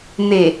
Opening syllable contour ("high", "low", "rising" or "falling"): low